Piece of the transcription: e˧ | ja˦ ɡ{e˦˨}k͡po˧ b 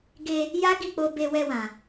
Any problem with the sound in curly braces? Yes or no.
yes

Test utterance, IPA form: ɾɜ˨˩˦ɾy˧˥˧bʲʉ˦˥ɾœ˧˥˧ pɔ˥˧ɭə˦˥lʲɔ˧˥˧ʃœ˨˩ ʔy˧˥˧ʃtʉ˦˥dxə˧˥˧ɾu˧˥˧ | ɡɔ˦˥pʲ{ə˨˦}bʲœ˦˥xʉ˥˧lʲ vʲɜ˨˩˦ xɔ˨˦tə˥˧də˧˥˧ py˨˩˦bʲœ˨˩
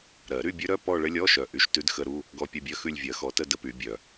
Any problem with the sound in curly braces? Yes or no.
yes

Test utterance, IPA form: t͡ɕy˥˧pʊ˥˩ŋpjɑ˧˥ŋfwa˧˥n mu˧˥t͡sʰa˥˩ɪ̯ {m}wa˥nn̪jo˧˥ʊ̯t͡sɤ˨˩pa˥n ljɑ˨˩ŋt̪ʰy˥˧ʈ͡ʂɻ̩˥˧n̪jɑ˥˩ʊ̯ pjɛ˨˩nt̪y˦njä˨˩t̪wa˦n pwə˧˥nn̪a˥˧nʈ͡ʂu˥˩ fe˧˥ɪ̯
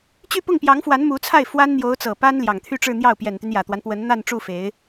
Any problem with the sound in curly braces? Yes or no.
yes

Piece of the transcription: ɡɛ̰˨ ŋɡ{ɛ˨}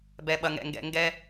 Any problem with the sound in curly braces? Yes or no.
yes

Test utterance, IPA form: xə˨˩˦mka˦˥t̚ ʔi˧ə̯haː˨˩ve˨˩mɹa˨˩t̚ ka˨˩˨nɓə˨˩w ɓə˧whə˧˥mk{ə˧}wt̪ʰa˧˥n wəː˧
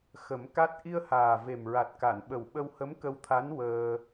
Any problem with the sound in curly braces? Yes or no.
no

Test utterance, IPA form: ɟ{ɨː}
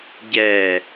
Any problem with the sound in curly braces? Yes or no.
yes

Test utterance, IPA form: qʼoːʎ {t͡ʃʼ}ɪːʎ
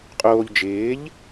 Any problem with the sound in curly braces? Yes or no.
yes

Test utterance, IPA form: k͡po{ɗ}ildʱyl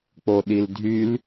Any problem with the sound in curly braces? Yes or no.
no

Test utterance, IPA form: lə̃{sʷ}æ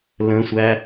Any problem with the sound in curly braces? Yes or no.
no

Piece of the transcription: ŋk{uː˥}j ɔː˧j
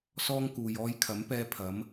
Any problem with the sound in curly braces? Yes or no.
yes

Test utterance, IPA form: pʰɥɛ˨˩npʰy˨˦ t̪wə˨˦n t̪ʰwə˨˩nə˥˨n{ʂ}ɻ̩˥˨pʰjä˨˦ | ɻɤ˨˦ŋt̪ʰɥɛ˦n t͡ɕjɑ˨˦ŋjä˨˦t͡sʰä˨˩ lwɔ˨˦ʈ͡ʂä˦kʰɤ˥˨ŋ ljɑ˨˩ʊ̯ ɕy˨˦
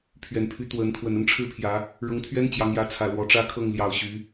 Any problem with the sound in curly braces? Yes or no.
yes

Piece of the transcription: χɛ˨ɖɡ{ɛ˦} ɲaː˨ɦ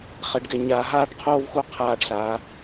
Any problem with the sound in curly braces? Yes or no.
yes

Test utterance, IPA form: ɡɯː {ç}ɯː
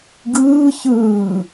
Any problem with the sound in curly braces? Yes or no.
no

